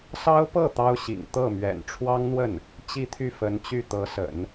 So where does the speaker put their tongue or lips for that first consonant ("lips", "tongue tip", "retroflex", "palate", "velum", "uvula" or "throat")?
tongue tip